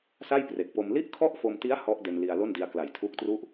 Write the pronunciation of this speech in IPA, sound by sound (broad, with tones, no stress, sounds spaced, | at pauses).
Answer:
s a˥˩ j p r e˨˩ k̚ p o˧ m l i˥˩ ʔ kʰ ɔ˥˩ ʔ f o˧ m t i˦˥ a̯ h ɔ˦˥ ʔ d e˧ n l i˧ a̯ l o˥˩ n d i˧ a̯ k l a˩˦ j tʰ uː˦˥ k̚ t r u˥˩ ʔ